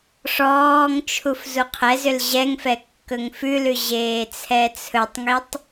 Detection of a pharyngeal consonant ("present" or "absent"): absent